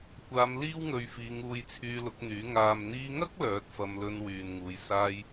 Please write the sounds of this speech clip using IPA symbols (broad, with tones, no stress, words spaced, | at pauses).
kʷaː˨˧m liː˥wŋɵ˨˧ɥfiː˨˧ŋuː˧j t͡sʰyː˧lʊ˨˥k̚n̪yː˨˥ ŋaː˨mn̪iː˧ŋɐ˥k̚ lœː˨˥t̚fɐ˧m lɵ˧n wyː˨nŋuː˨˧j saː˥j